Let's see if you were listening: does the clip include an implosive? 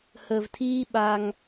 yes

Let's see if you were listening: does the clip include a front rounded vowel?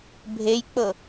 no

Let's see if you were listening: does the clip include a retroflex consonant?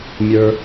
no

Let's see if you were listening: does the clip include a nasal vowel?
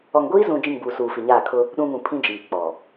yes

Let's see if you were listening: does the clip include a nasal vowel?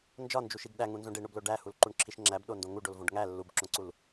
yes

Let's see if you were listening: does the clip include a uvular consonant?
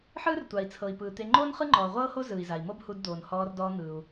yes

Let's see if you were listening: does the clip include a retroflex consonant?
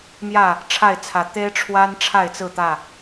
yes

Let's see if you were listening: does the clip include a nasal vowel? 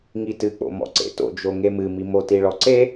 no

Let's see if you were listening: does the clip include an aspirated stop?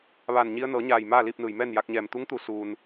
no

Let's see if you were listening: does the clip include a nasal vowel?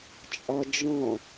yes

